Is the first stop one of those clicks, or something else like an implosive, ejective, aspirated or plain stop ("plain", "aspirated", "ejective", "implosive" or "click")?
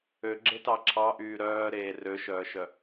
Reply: click